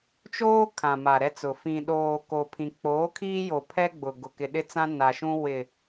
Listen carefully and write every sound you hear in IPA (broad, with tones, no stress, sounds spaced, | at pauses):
t͡ʃ oː˦ kʰ ã˨ m a˨ ɾ ɛ˦ t͡s ʊ˨ f ĩ˨ ɗ oː˨ k o˨ pʰ ĩ˨ k͡p oː˨˦ kʰ iː˦ j o˨ pʰ ɛ˦ ɡ͡b ʊ˨ ɡ ʊ˨ k ɪ˨ ɗ ɪ˦ t͡s ã˦ n a˨ ʃ ũ˦ w ɪ˨